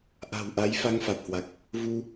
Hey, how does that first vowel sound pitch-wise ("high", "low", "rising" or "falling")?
low